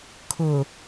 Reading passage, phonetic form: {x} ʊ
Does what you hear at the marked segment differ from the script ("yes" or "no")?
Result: yes